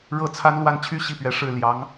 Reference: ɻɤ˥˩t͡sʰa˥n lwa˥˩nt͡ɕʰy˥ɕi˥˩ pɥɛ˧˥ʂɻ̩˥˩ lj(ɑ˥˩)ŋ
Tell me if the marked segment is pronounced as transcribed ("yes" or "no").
no